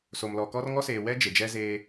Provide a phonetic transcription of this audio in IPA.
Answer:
so˨mlɔ˨kɔ˦r ŋɔ˦seː˨wɛ˦ d͡ʒe˨d͡ʒɛ˦zeː˦

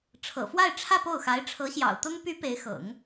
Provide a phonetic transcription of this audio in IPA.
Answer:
ʈ͡ʂʰɤ̰˨˩fwa˥˧ɪ̯ʈ͡ʂʰä˥˧ po˥˩ʊ̯xa˧˥ɪ̯ ʈ͡ʂʰɤ˧˥ɕjɑ̰˨˩ʊ̯t̪ʊ˥ŋ py˧˥ pe˧˥ɪ̯xɤ̰˨˩˦ŋ

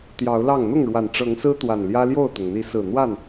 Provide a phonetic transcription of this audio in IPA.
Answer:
t̪jɑ˨˦ʊ̯lɑ˥˨ŋ n̪ʊ˥˨ŋɻwa˨˩nʈ͡ʂɤ˨˦ŋsɹ̩˦ t̪wa˨˩nljä˦ljo˥˨ʊ̯t̪ʊ˩ŋ n̪i˨˦sɹ̩˨˩n̪wa˥˨n

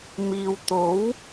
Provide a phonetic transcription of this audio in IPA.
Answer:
miː˨wt̪o˨˥w

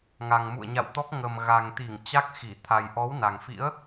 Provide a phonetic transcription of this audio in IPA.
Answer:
ŋa˨˩ŋmṵ˧˨ə̯ɲa̰˧˨wt̪ɔ˦˥k̚ ŋə˨˩m ɣa˨˩ŋt̪i˧˩ŋ t͡ɕa˦˥k̚xi˧˩ t̪ʰa˨˩jʔɔ˨˦w na˨˩ŋfḭ˧˥ə̯

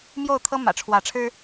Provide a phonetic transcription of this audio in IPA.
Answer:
mjo˥˨ʊ̯t̪ʰɤ˦ mä̰˨˩ʈ͡ʂʰwä˨˦ʈ͡ʂʰɻ̩˦

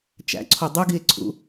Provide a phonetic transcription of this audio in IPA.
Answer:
t͡ʃæ̰ǀʰo dˤuɡie̯ǀʰṵ

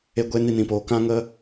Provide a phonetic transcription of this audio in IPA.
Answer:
e˦ɡʷe˦ ni˧nĩ˨poː˨ kã˦ŋə˦

